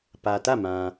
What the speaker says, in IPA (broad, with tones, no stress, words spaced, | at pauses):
pä˨tä˦˨mã˨